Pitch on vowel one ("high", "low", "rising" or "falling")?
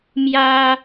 high